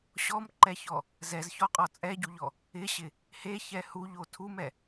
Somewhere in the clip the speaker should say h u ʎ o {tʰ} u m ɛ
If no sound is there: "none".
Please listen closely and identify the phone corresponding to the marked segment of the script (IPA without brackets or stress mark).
tʰ